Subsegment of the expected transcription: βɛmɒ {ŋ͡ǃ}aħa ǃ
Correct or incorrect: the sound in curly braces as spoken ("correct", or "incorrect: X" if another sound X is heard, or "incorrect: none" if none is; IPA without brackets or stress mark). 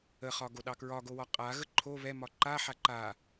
incorrect: ǃ